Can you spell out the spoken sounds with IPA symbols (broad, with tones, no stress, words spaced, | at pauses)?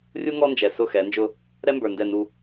rʲu˦ ŋɔ˦nd͡ʒɛ˨ sʊ˦˨xɛ˨˦nd͡ʒʊ˦ | ɾɛ˦mbə˞˨ndɛ˦˨ nu˦